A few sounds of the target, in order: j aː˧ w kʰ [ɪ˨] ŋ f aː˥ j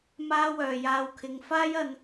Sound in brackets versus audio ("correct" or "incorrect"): incorrect